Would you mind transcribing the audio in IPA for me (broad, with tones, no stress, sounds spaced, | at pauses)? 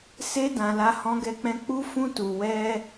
s e˦ d ã˧ l a˦ h ɔ̃˦ ɡ ɛ˦ k͡p ɛ̃˦ k͡p u˦ f ũ˦ t u˧ w ɛ˦